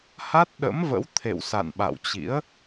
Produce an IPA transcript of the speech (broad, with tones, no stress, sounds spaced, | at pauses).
h a˦˥ t̚ ɗ ə̰˧˥ m v ə̰˧˥ w t̪ʰ ḛ˧˨ w s a̰˧˨ n ɓ a̰˧˨ w t͡ɕ ḭ˧˥ ə̯